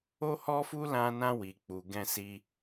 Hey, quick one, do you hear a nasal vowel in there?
yes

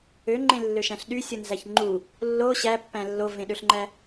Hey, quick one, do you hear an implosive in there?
yes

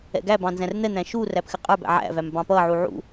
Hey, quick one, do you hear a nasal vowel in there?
yes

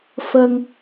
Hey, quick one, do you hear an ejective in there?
no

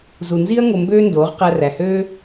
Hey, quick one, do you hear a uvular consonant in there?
yes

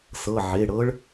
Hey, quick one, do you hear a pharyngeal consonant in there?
yes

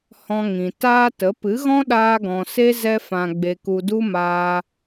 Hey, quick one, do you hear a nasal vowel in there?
yes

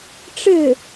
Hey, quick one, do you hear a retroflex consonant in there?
yes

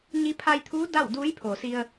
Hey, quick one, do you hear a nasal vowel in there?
no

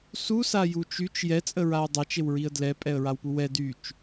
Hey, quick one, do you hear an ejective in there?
yes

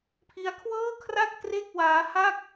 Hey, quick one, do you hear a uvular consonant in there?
no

